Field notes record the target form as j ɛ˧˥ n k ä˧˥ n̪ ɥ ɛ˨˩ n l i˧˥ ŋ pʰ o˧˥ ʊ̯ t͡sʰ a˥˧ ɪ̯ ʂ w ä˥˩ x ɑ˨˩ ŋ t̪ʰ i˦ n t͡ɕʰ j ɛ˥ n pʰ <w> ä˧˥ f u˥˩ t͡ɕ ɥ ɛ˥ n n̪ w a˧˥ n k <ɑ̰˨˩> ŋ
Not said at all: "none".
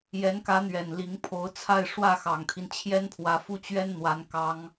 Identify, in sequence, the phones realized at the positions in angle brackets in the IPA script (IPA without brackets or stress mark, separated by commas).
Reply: w, ɑ˥